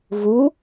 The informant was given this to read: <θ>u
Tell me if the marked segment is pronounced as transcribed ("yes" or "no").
no